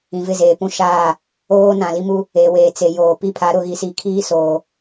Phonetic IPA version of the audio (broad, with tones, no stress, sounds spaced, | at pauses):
ĩ˨ v ɪ˦˨ z eː˨ p ũ˦˨ ʃ aː˦˨ | oː˦ n ã˨ l i˦ m u˦ | e˨ w eː˨ t͡s e˨ j oː˨ p i˦ pʰ a˨˦ ɾ ʊ˨ ɣ i˨ s iː˨ kʰ iː˦ s oː˨